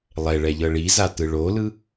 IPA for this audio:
lˠ ɛ ɭ ɛ ʎ ɤ ɭ i z a t ɯ ɭ o l ɯ

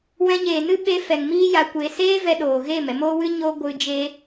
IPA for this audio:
w ɛ̃˧ ɲ eː˨ n ɨ˦ ɓ eː˧ f ɛ˨ ŋ m iː˦ j a˧ kʷ e˧ s eː˦ v ɛ˧ ɗ oː˨ ɣ eː˦˨ m ɛ˧ m oː˦ w ɨ˦ ɲ oː˦ ɡʷ ɨ˦ d͡ʒ e˦

